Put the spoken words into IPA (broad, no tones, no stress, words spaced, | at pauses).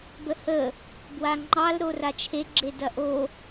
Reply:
bəhə | bwaŋ͡ǃɑl ɾorat͡ʃʰe ɡ͡ǁedɐʔo